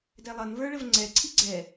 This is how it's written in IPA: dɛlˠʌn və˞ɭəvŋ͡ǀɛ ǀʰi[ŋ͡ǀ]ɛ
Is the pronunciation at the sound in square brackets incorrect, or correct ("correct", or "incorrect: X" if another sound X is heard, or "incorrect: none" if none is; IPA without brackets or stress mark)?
incorrect: ɡ͡ǀ